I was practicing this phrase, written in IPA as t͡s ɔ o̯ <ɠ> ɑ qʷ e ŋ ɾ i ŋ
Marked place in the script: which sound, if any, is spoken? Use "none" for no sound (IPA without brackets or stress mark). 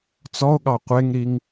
ɠ